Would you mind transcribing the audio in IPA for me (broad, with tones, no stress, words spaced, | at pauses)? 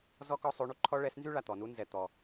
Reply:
zɔ˥kɔ˥ sˤo˧˥ɳu˥ǃʰɔ˥ ɭɛ˧˥snzy˥ɭa˧ t̪ɔ˩˧nu˧˥ nzɛ˧ t̪ɔ˧